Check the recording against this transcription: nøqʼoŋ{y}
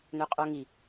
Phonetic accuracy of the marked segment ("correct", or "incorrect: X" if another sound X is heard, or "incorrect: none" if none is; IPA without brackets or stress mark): incorrect: i